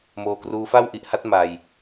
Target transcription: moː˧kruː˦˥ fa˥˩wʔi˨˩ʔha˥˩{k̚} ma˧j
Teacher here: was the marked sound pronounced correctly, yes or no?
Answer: no